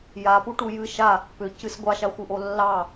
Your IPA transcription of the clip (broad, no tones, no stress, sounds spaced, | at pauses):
j a p u ʈ u j ɨ ʃ a | p ʏ c ɨ s ɡʷ ɑ ʃ a xʷ ɨ ʔ o lː ɑ